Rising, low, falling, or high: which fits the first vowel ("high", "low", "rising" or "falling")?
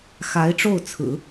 rising